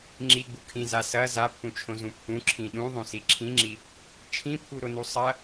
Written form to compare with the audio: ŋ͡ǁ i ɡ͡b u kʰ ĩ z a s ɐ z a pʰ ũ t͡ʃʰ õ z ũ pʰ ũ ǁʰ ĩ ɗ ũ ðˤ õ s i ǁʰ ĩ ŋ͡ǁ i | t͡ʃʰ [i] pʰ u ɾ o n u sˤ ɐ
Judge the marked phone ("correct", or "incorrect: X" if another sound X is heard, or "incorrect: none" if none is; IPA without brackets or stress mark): incorrect: ĩ